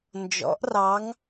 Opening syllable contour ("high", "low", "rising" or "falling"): rising